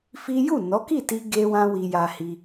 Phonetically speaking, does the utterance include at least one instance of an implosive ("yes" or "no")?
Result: no